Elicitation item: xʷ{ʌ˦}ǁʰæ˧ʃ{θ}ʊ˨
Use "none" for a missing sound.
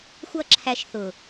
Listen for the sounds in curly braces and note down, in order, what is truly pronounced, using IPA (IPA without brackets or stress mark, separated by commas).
ʌ˦˨, θ